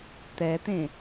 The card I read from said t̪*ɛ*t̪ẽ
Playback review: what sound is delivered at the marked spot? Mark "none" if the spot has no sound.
ɛ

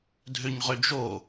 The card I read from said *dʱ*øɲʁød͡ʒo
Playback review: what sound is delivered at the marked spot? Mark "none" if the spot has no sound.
dʱ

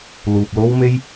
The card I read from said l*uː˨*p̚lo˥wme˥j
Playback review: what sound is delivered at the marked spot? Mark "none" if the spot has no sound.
uː˨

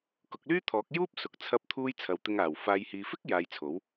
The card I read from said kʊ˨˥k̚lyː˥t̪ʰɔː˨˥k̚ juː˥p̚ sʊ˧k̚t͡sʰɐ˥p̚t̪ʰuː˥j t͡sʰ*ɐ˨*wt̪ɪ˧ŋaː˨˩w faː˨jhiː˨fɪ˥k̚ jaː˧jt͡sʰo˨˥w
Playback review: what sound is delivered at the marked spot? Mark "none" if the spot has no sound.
ɐ˨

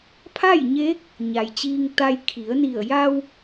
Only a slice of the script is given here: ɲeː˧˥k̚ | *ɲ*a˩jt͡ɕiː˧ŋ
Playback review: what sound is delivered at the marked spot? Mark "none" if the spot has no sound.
ɲ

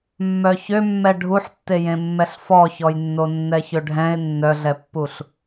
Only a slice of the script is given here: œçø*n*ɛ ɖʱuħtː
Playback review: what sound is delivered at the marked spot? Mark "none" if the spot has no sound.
mː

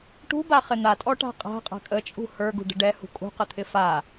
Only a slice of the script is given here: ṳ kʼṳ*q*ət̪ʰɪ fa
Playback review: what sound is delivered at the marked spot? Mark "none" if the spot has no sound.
q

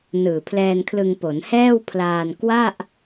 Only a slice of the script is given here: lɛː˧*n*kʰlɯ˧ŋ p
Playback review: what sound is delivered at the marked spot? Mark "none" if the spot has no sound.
n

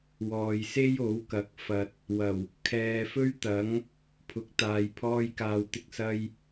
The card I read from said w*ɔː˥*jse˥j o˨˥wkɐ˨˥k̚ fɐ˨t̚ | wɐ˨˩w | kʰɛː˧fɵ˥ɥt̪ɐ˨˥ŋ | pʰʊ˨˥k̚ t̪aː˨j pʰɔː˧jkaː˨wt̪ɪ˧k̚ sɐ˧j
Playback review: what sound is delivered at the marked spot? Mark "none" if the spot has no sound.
ɔː˨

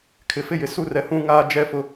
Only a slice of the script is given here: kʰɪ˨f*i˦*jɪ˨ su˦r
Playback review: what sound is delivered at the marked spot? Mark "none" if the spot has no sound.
ɪ˦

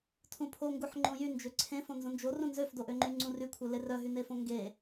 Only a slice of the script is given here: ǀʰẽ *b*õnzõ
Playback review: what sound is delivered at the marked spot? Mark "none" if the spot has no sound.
f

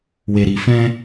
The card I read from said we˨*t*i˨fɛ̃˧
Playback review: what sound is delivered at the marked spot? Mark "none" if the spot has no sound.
ɾ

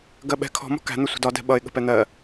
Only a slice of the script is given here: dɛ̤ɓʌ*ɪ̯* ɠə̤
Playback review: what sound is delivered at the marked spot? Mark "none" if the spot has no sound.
ɪ̯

